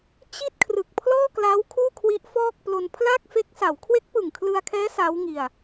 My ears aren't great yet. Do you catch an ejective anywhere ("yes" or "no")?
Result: no